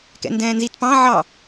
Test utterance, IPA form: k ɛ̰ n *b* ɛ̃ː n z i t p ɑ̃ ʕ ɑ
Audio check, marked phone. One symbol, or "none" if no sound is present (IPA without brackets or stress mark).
d